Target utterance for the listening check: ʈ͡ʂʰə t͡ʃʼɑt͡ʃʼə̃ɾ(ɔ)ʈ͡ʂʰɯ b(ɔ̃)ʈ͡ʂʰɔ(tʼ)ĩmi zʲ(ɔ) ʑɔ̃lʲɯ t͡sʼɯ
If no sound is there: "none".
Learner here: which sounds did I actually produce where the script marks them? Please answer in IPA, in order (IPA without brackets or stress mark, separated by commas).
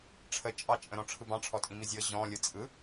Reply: ɔ̃, ɑ̃, tʼ, ɤ